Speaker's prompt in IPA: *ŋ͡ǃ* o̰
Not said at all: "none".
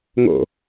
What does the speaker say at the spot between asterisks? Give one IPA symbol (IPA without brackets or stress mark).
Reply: ŋ